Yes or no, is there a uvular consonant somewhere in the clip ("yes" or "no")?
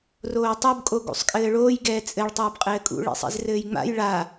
yes